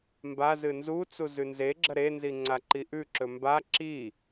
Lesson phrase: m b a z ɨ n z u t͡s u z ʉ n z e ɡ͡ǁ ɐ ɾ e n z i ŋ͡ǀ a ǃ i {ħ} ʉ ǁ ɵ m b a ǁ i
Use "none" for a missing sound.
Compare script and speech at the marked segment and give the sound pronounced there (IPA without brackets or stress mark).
ʔ